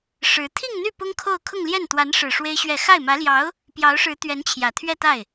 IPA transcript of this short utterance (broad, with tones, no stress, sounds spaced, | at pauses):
ʂ ɻ̩˧˥ t̪ʰ i˥˧ ŋ n̪ y˥˩ p ʊ˥ ŋ kʰ o˥˧ ʊ̯ kʰ ʊ˥˧ ŋ l j ɛ˥˩ n t̪ w a˧˥ n ʂ ɻ̩˨˩ ʂ w e˥ ɪ̯ ɕ ɥ ɛ˥˧ x a˥˩ ɪ̯ m ä˧˥ l j ɑ˧˥ ʊ̯ | p j ɑ˧˥ ʊ̯ ʂ ɻ̩˧˥ t̪ ɥ ɛ˧˥ n t͡ɕʰ j ä˨˩ t̪ʰ ɥ ɛ˥˧ t̪ a˥˩ ɪ̯